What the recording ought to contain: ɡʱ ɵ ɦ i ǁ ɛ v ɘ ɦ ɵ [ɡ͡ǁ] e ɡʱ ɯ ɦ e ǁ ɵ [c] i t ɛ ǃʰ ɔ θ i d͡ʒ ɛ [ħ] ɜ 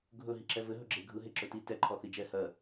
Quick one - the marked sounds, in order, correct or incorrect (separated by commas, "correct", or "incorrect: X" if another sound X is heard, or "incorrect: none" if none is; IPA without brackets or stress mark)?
correct, incorrect: t, incorrect: h